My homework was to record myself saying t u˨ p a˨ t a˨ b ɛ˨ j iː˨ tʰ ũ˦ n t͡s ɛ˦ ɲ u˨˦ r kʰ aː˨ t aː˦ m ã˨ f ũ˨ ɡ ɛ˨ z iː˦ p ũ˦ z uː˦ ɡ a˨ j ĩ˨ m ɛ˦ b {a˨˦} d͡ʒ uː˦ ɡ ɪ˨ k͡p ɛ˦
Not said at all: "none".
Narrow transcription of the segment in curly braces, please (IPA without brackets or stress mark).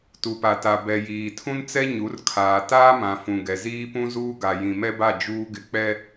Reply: a˦˨